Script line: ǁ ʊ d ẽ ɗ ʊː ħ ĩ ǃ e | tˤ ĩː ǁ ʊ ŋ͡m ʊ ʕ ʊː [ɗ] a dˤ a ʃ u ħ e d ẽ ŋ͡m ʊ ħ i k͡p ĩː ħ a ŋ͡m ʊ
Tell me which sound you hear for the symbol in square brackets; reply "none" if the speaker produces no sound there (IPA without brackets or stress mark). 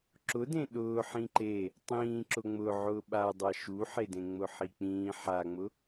ɓ